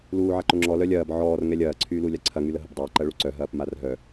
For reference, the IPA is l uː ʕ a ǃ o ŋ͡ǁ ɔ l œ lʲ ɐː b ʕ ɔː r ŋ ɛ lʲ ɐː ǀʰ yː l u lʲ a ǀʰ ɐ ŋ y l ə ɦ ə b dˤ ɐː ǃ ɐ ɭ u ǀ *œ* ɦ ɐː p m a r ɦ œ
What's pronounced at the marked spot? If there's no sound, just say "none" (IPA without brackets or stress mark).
œ